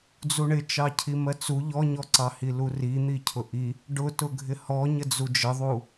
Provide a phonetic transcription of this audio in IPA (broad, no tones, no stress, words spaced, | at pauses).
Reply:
d͡zuɳɪt͡ʃɑ cʰimɜt͡su ʎɔɲɔǀɑhi lurin̪i cʰʊʔi | ɖʊtʊɡʱɪ hɔ ɲəd͡zud͡ʒəðˤu